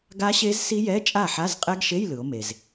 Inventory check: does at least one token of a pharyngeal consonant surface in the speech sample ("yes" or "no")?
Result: yes